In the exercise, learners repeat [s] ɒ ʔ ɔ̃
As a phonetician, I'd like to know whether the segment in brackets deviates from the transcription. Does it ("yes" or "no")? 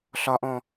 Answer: yes